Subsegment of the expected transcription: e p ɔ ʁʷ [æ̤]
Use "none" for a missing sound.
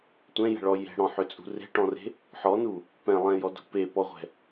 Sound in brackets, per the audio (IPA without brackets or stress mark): ɛ̤